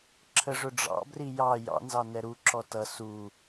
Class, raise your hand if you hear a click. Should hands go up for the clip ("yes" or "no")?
yes